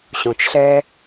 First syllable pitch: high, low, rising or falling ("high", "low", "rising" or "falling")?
low